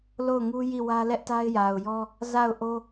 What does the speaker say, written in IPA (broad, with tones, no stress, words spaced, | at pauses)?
lo˦˨ʊ̯ŋu˦ji˦˨wä˦ lɛ˦ʔta˦ɪ̯ja˨ʊ̯jɔ˦ | za˦˨ʊ̯ʔo˦